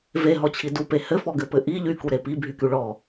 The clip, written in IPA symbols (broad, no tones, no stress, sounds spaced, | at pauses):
v e ɦ ɔ t͡ɕʰ i d u p e h ɘ f ɔ ɡ ɘ p ɘ ʔ i ʎ y k u ɾ e p i bʱ y k y ɭ ɔ